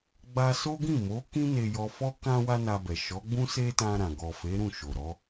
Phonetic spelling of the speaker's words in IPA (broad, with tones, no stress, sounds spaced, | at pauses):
ɡ͡b a˦ s o˦ ɡ ĩ˦˨ m o˨˦ k ĩ˦ n e˧ j ɔ˧ f ɔ˦ k ã˦ w a˦ n a˧ b ɛ˨ ʃ ɔ˨˦ ɡ͡b ũ˦ s e˦ t ã˧ ɾ ã˨ ɡ ɔ˨ f e˨˦ ɾ ũ˦˨ ʃ o˨ ɾ ɔ˨˦